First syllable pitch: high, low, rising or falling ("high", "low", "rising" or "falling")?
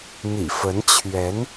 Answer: low